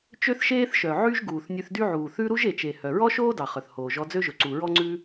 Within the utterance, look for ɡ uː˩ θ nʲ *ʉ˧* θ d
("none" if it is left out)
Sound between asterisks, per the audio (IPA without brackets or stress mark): ʉ˧